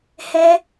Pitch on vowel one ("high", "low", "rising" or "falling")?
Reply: high